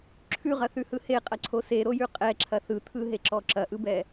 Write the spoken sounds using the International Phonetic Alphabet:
ǁʰ ʉ ʁ ɐ θ ʉ h ɯ h e qʼ ɐ ǀʰ o s e ɾ o j ʉ qʼ ɛ ǁʰ ɐ θ ɯ t̪ʰ ɯ ɦ e ǁ ɔ ǁ ɐ ʔ ɯ b ɛ

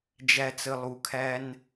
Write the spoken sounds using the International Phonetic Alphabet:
d͡ʒ æ˦ t͡s ə˧ lˠ u˨ kʰ æ˦ n

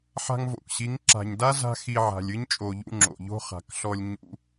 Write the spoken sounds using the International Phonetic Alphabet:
ħ a̤˧ ŋ v o̰˨ k ɕ i˨˦ ŋ ǁ a̤˨ ɲ d a˦ z a̤˦ x i˧ ʕ a̤˨ lʲ ɨ˦ ɲ t͡ʃʼ o˨ ʎ ṵ˧ ŋ͡ǁ o̰˨ ʎ o̤˦ χ a̤˨ k ɬ ɔ˧ lʲ ɲ ṵ˧

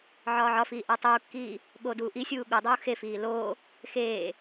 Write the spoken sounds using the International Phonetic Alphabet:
ʕ ɒː ʕ ɒ f iː ʔ æ tˤ uː kː iː | ɠ oː d uː ʔ i sʲ uː ɠ u dˤ uː x e f iː l oː | x eː

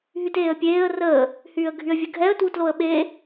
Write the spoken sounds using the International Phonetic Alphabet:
ɦ y t eː ə̯ pʲ eː ə̯ r əː | h yː ə̯ ɡʱ y ə̯ vʲ ə ɡʱ ɛ ə̯ t w u t l o ə̯ ɓ e

